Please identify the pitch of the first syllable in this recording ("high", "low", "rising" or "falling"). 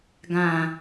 low